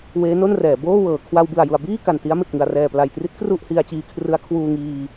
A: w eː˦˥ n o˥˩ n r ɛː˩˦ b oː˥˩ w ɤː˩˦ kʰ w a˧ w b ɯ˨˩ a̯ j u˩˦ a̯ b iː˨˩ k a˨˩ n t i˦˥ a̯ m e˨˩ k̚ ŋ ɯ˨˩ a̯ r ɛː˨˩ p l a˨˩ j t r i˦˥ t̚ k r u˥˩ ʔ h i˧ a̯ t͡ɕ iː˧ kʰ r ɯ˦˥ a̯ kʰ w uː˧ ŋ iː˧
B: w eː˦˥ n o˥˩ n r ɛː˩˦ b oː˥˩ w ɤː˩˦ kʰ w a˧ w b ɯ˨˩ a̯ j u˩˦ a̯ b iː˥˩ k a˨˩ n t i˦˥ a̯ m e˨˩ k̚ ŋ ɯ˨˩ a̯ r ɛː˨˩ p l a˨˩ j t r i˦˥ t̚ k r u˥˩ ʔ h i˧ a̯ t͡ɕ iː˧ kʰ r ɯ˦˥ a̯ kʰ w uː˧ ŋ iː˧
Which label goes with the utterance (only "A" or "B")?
B